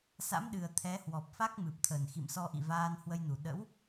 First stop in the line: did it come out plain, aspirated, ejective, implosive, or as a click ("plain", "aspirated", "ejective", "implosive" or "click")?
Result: implosive